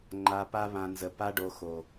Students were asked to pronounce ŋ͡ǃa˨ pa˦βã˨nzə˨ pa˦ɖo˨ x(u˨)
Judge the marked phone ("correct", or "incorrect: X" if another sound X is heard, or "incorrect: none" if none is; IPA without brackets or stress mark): incorrect: o˨